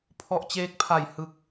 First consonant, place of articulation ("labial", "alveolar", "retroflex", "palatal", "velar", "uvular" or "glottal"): labial